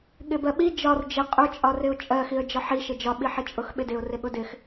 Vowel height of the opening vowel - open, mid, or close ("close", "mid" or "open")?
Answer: close